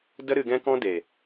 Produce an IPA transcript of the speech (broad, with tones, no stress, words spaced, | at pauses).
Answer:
də˦ ɾɨ˧ɡɛ̃˦kɔ̃˦ de˨